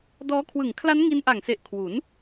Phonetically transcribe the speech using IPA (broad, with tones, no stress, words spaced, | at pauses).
dɔː˦˥kʰwɯ˨˩ŋ kʰla˦˥nŋi˧nʔa˨˩ŋse˨˩ʔ kʰwu˩˦n